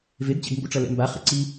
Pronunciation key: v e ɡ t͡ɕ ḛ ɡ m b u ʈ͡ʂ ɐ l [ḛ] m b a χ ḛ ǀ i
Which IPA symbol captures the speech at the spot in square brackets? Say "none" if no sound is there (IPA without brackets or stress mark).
ɛ̰